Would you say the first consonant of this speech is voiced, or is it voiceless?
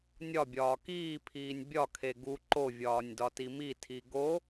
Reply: voiced